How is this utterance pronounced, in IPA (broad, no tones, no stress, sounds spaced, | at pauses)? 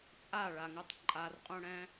t͡sʼ a ɭ a ŋ ɯ tˤ ǃʼ a r qʼ ũ ɽ ɛ̃